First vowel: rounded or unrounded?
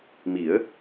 unrounded